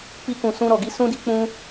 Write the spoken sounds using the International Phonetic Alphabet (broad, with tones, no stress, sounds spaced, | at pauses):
k͡p i˧ k ũ˨ s ũ˧ ɾ ɔ˨ ɡ i˧ s ũ˦ d i˦ k͡p ũ˦